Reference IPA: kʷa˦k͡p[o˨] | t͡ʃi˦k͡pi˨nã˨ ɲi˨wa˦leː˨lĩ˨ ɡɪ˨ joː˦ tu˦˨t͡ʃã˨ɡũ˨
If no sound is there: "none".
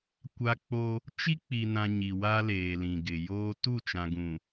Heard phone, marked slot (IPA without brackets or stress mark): o˦